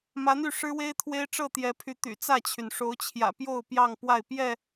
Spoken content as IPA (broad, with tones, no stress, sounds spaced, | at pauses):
m ä˨˦ n̪ y˥˨ ʂ ɻ̩˦ w e˦ ɪ̯ t̪ʰ w e˦ ɪ̯ ʈ͡ʂ ɤ˥˨ t̪ j ɛ˨˦ pʰ y˨˦ t̪ y̰˨˩ t͡s ä˥˨ t͡ɕʰ y˩ n ʂ o˨˦ ʊ̯ t͡ɕʰ j ä̰˨˩ p j o˥˨ ʊ̯ p j ɑ˥˨ ŋ p w a˥˨ ɪ̯ p j ɛ˥˨